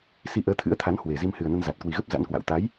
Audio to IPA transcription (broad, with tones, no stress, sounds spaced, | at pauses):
s i˧ ʔ əː˨˦ t̪ʰ ɨ̰˧˥ ə̯ t̪ʰ a˨˦ n h w e˨˩ z i˧ m h ɨ˨˩ ə̯ n ə˧ n z a˨˩ t̚ k w i˨˩ ɣ ə˦˥ p̚ z a̰˧˥ n k w a̰˧˨ w t̪ a˨˦ j